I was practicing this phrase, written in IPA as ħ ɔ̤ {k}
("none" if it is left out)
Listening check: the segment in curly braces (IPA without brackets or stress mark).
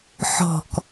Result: k